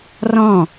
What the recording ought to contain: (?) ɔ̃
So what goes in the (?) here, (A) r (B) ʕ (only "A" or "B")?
A